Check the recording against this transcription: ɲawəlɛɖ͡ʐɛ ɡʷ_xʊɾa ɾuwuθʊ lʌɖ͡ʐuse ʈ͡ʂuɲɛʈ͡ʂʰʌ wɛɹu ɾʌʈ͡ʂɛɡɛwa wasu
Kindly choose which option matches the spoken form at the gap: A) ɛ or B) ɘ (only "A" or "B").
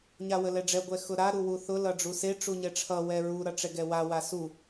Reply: A